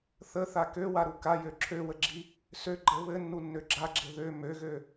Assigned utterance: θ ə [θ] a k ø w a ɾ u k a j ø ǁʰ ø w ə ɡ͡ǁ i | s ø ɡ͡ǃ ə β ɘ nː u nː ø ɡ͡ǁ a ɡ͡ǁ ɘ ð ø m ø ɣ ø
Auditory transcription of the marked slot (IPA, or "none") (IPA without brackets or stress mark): θ